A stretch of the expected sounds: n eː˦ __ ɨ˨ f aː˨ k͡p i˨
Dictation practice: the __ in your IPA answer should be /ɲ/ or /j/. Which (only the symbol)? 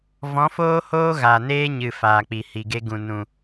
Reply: ɲ